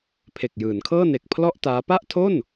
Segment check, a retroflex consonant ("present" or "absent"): absent